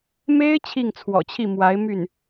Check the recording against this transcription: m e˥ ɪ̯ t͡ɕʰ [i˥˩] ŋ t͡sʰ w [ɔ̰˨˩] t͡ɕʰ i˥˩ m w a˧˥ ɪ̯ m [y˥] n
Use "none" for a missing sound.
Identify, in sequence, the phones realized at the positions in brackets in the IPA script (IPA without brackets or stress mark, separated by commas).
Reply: i˥˩, ɔ̰˨˩, y˥˩